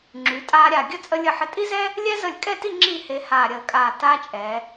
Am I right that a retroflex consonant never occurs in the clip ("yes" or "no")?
yes